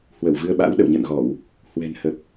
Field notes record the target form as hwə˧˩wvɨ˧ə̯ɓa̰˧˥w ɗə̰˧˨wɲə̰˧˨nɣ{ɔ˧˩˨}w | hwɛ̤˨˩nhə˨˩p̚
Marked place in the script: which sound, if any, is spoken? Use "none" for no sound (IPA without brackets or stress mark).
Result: ɔ˧˩˨